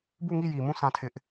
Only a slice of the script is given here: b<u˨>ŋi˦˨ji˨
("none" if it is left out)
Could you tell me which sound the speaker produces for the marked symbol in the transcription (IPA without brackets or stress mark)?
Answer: u˦˨